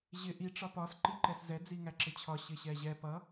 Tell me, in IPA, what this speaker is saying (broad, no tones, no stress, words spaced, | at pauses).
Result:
ʑɪ ʔi ʈ͡ʂɒpɒs ǃiǃɛszɛ d͡ziŋæǁɪt͡ɕʰɒ ɕɪɕɛʑɛ pʌ